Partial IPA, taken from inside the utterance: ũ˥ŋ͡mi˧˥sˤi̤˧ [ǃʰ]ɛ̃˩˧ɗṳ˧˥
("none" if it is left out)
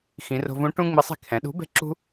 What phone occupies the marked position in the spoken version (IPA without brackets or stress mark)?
kʰ